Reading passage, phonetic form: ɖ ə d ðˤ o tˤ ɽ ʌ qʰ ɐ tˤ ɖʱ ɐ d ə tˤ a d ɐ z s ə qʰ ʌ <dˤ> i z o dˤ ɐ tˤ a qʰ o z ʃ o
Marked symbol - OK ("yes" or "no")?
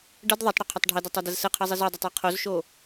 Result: no